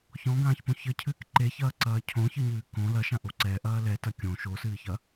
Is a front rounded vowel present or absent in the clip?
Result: absent